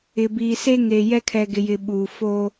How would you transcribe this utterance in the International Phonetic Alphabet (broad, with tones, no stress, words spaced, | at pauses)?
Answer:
ɪ˨biː˨se˦ŋe˨ jɛ˦kʰɛ˨ɡɪ˨jɪ˨ ɓuː˨foː˦